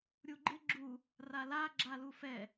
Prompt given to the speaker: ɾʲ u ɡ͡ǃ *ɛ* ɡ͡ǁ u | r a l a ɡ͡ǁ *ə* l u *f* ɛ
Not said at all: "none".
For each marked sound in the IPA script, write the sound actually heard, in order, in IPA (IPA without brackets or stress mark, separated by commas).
ɪ, a, f